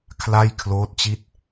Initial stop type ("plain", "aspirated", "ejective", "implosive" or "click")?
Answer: aspirated